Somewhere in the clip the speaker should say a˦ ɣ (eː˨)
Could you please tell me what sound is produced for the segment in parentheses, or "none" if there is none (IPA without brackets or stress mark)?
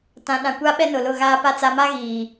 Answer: iː˨